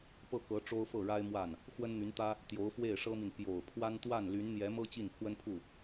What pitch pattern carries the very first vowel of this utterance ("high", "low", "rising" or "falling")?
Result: falling